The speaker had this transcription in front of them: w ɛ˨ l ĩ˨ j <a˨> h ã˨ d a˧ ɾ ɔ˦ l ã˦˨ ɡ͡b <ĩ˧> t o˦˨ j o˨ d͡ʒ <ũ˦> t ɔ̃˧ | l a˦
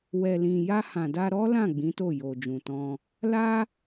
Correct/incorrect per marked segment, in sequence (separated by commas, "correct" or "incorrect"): incorrect, incorrect, incorrect